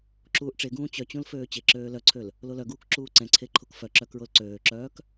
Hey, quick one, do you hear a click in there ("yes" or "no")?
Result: yes